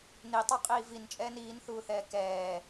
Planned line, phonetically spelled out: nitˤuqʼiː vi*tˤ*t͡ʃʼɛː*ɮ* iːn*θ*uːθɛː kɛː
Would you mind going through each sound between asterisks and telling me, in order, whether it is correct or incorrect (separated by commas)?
incorrect, incorrect, correct